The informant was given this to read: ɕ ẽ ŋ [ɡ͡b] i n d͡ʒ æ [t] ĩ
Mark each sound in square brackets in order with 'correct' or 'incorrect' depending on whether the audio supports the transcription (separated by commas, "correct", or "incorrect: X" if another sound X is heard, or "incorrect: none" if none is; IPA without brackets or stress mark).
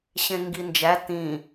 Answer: incorrect: ɡ, correct